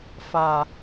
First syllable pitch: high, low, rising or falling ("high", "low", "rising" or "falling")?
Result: low